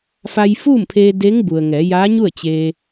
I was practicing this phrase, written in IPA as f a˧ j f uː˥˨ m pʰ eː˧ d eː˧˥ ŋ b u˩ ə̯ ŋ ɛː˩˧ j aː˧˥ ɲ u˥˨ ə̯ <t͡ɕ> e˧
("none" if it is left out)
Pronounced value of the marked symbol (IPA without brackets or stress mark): t͡ɕ